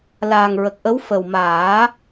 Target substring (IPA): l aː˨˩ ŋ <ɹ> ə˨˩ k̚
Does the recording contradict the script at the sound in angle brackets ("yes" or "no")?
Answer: no